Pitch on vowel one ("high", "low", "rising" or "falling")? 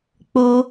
high